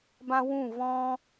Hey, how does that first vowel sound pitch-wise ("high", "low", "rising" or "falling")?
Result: high